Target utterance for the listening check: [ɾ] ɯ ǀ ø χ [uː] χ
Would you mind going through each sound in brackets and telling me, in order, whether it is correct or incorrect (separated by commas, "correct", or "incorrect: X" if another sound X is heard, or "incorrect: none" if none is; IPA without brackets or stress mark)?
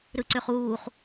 correct, correct